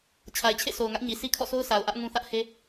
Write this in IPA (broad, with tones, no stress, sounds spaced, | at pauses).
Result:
t͡ɕʰ a˨ ɪ̯ t͡ɕʰ ḛ˦˨ s o˨ ʊ̯ ŋ ä˦ ʔ ɲ i˨ s i˦ kʰ ɔ̰˦˨ sʰ o˦ ʊ̯ s a˨ ʊ̯ ʔ ä˦ ʔ ŋ ũ˦ θ ä˦ ʔ h e˦